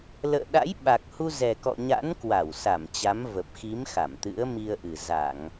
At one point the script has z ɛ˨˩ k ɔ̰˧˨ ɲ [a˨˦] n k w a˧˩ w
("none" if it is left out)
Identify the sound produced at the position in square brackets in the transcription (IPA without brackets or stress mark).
a̰˧˥